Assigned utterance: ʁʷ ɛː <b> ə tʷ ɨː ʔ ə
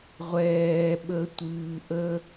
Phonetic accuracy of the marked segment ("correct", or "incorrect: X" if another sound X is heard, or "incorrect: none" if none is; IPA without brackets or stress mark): incorrect: ɓ